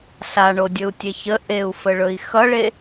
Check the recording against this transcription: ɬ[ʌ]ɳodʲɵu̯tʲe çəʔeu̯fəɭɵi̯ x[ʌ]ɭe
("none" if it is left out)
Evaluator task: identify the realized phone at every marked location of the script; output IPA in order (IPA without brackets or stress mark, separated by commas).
a, ʌ